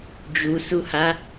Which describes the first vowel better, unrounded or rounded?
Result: rounded